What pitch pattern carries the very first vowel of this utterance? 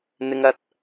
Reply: high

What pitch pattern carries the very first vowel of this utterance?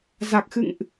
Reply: low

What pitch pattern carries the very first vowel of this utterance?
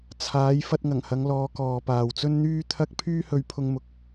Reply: rising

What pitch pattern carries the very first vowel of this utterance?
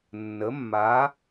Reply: rising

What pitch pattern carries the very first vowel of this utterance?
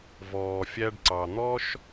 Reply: low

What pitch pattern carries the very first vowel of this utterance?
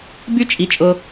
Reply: high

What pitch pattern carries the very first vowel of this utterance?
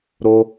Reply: high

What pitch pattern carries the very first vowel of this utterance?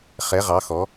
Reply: rising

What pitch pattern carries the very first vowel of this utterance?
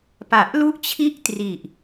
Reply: low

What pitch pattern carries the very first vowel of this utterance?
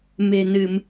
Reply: low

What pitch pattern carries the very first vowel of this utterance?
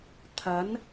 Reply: rising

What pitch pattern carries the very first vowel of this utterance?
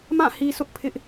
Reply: falling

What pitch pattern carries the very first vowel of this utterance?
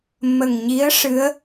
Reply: low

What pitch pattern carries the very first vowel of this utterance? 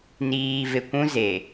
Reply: low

